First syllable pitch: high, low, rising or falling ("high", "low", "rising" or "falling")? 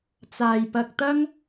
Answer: low